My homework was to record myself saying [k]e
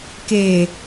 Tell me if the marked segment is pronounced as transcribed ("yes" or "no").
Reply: yes